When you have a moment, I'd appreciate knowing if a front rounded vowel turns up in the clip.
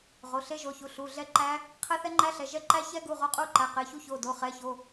no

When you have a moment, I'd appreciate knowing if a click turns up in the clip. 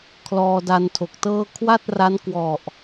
no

